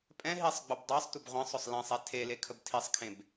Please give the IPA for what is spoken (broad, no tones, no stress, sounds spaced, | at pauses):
pʼ ɛ̃ ɦ i sˤ ɡ͡b ʊ b dˤ e sˤ tʷ ə b ʁʷ ə̃ sˤ ʊ sˤ l ĩ sˤ ɛ tʰ e l e kʰ ə b tʰ i sˤ kʰ ẽ b